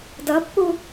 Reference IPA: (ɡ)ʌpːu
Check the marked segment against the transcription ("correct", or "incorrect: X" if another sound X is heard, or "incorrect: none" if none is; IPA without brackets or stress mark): incorrect: d